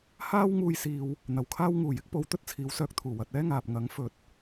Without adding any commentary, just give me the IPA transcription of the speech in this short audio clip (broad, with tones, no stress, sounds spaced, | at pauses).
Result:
h aː˥ w ŋ uː˧ j s iː˨ w | n̪ ɐ˨˩ w kʰ aː˥ w ŋ uː˨˩ j ɪ˥ k̚ p o˨˧ w t̪ ɵ˥ t̚ t͡sʰ iː˨˧ w s œː˧ k̚ t̪ʰ uː˨˩ w ɐ˧ t̚ ɛː˥ ŋ aː˨ p̚ ŋ ɐ˨˥ ŋ f ɵ˨˥ t̚